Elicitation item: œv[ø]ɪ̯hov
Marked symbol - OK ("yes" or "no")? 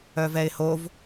no